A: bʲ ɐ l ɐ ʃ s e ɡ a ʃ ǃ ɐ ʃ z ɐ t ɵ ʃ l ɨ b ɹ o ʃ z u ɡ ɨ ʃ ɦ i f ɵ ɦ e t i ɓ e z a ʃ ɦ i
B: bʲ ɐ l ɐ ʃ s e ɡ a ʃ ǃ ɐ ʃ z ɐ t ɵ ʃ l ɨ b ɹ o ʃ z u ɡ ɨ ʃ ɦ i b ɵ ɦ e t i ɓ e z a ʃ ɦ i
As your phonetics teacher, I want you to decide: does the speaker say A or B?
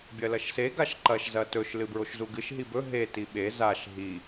B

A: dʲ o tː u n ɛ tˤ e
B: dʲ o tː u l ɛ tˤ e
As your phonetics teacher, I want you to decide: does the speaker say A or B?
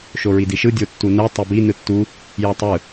A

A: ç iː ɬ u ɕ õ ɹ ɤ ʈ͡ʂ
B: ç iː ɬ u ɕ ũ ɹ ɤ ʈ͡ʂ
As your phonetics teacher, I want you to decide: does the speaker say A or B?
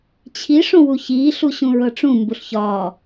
B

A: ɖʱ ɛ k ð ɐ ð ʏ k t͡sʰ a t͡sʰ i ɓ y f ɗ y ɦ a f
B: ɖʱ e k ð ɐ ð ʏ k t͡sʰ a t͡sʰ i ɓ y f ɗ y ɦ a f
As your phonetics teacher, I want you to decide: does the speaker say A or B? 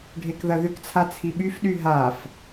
B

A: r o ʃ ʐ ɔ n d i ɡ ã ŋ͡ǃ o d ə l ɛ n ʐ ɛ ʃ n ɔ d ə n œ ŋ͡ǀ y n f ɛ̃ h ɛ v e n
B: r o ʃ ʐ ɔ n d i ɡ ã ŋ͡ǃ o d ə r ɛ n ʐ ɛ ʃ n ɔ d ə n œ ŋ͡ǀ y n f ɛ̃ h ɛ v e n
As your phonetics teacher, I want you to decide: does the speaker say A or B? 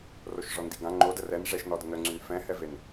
B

